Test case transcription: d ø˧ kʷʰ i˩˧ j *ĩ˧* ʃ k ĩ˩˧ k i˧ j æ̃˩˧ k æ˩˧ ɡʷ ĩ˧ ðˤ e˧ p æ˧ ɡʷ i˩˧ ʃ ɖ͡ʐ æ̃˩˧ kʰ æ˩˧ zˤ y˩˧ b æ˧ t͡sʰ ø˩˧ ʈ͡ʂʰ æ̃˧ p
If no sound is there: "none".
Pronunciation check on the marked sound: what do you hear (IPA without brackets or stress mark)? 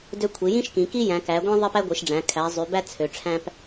ĩ˧